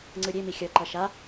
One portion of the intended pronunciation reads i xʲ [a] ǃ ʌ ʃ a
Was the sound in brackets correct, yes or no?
no